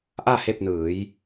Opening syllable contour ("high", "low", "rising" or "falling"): falling